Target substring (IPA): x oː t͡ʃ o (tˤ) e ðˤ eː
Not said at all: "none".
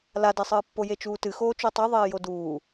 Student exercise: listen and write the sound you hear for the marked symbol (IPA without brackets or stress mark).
tˤ